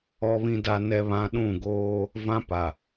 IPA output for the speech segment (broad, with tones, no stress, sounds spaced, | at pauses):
ɔ˨ β ĩ˨ d a˨ n ɛ˨ β ã˨ ɗ ũ˦˨ ɡ oː˦ | v ã˦ p a˨